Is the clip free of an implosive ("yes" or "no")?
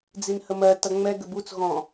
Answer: yes